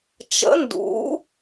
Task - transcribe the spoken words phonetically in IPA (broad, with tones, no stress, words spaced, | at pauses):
t͡ʃə̰˨˥ ndṵ˨˥